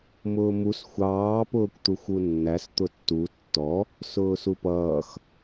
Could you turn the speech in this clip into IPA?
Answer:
m ʊː m u s xʷ ɑː p ʊː kʷ t̪ u xʷ u nː æ s t̪ ʊ tː u tː ɔ | s ʊː s u p ʌː x

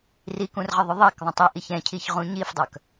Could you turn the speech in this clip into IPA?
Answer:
r i k ũ r ʁ ə ðˤ ʊ ðˤ ɛ k ðˤ ə̃ tˤ i ʔ i ç ɛ̃ cʰ i ç ʁ ũ ɲ i f dˤ œ k

